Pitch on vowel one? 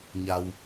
low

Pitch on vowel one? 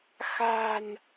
low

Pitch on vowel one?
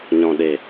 low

